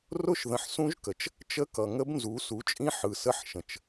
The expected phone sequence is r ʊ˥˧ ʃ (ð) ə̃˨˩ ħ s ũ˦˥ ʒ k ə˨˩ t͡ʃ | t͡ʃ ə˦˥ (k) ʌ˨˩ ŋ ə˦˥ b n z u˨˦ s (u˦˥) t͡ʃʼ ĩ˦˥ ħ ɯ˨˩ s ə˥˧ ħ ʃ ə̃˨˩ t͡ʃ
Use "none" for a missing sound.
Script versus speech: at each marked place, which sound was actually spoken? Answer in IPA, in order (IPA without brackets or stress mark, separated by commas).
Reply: ð, k, u˨˦